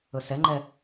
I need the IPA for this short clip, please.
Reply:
ɵsɛŋ͡ǃɛ

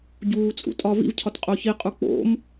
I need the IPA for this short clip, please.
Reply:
ɟuːt͡sʼṵtʼɒ vḭvcʰɒtqʼo çiqʼu k͡po̰m

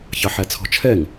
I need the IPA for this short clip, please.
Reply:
çɑħæt͡sʰɔ̤t͡ʃʰɛŋ

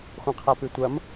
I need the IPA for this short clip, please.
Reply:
χʷĩqʰapʉtʷɐm

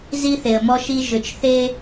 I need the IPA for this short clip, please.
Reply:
zi˦θe˨ə̯mɔ˦ʃi˦ ʒʏ˨t͡ʃθe˦

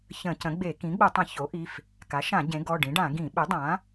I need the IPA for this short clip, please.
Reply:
çə̃˧˩˧cə̃˩˥ɡ͡be˧˩˧ kĩ˩˥ɡ͡bə˧˩˧tˤə̃˧˩˧ ço˩˥ʔi˩˧˩f | ka˩˥ʃã˧˩˧ ɟẽ˩˥ ɡɔ˩˧˩ɖĩ˩˥ɖã˧˩˧ ɡĩ˧˩˧ɓɪ˩˥dˤã˩˥

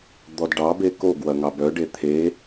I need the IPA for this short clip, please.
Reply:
d̪ɔdɖɑbe koɡwɐ ŋɑbœɖe t̪ʰe

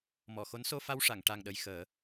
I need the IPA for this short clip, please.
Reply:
mɔ˨˩˨xo˧˥n so˧fa˧wʂa˨˩˨ŋ ʈa˨˩ŋɗə˨˩j xəː˨˩˦

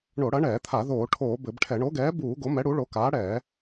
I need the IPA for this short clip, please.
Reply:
ɳo˧˩˧ɽɐ˨˥ɳɛː˧˩˧t̪ʰa˧˩˧ ðoː˧˩˧ʈʰoː˧˩˧ bɘ˧˩˧bʈʰɛ˧˩˧ ɳo˨˥ɡɛː˨˥buː˧˩˧ ɡo˨˥mɛ˨˥ ɽu˨˥ɭo˨˥kaː˨˥ ɽɛː˧˩˧

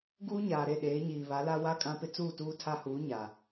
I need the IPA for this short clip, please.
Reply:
ɡuː˦ɲaː˨ɾe˦˨ɗeː˨˦ ɲiː˨βa˨˦la˦ wa˦kʼã˦pɪ˦ t͡suː˦˨tuː˦tʰa˦huː˨˦ ɲa˨

